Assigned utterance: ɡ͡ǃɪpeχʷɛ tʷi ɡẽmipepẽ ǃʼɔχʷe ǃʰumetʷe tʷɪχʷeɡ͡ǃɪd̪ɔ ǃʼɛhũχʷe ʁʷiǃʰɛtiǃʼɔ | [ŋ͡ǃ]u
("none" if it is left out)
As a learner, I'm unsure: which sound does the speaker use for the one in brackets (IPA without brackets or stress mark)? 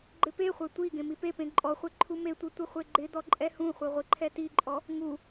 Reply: ŋ